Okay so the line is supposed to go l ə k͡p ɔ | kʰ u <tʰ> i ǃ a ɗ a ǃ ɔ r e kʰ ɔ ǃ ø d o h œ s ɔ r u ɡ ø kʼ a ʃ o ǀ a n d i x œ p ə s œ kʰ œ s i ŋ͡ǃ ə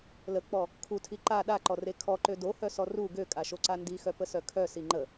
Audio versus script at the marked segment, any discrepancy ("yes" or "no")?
no